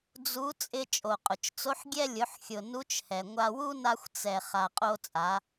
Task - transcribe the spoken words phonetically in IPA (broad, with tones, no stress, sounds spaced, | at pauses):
d͡z u˧˥ t͡sʼ ɪ˧ t͡ʃʼ o˩ qʼ ʊ˩ t͡ʃ t͡s o˧˥ ħ ɡʲ ɛ˧ lʲ ʊ˩˧ ħ xʲ ʊ˩ n u˧˥ t͡ʃ h ɛ˩ ŋʷ a˧ w u˥ n a˧ xʷ t͡s ɛ˩ χ a˩ qʼ o˧ t͡sʼ a˩˧